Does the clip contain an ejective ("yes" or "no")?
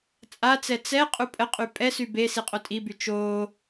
yes